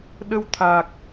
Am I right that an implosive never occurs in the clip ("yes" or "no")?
no